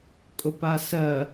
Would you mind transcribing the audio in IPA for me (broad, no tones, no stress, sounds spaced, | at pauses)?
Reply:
kʼ ʊ p a s ɜ